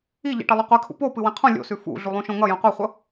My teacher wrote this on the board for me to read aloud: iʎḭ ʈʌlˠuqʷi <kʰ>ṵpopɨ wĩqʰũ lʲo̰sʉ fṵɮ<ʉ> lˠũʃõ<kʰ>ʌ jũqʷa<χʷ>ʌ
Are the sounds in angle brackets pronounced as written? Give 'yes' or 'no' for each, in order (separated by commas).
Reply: yes, no, no, yes